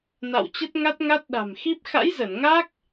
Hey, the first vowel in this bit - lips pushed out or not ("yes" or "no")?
no